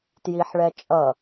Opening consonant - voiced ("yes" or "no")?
no